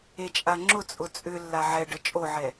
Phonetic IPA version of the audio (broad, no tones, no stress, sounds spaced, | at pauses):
e t͡ʃʼ a ŋ͡ǁ ʊ t͡sʼ ʊ t͡sʼ ʏ lː a ʕ ɛ ɖ ə t͡ʃʼ o ʕ ɛ